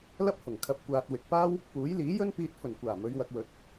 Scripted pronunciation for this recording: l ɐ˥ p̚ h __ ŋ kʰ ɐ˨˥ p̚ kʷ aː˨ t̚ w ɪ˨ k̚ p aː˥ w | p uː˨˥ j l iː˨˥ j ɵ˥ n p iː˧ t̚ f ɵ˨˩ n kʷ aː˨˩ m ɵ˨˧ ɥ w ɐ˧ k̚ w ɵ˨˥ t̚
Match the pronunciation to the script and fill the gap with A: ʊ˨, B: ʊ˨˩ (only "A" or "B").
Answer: B